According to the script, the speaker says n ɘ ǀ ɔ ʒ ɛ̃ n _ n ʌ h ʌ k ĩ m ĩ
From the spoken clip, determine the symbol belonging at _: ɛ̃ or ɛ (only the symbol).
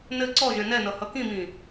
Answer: ɛ